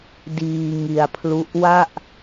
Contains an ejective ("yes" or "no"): no